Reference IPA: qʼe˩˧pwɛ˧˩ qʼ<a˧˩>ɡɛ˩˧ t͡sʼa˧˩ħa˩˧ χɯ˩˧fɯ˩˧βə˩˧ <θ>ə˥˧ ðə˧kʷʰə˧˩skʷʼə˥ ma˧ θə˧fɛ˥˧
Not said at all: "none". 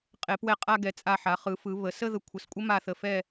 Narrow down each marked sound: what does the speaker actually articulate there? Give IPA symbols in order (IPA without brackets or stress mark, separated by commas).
a˧, s